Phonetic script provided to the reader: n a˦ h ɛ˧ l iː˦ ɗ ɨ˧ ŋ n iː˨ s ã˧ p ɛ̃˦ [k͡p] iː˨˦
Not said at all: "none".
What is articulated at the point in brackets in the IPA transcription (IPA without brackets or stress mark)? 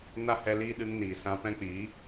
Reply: k͡p